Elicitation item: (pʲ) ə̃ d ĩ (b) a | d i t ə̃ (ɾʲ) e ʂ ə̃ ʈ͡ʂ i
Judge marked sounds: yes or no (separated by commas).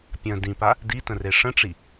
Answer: yes, no, no